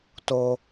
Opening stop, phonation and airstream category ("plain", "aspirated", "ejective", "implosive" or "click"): plain